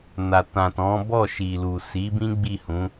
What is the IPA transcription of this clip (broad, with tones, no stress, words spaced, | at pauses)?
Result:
na˨tã˨tɔ̃˨˦bɔ˦˨ ʃi˨lu˨si˨˦bĩ˦ ɡ͡bi˦˨hũ˨˦